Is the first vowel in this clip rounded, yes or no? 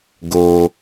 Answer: yes